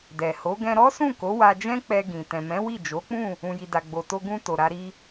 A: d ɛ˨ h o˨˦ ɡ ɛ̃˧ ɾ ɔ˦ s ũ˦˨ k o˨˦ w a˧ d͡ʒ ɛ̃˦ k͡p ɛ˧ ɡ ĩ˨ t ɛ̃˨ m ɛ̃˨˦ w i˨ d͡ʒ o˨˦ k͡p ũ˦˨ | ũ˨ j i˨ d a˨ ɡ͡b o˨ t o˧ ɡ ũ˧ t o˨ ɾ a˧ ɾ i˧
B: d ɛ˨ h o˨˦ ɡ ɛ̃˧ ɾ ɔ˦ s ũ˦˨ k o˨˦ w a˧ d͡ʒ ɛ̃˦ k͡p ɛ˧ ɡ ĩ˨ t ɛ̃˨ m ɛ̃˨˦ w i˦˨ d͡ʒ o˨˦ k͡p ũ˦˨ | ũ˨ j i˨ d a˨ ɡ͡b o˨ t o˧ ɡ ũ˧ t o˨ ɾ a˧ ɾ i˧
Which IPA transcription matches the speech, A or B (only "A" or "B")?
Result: B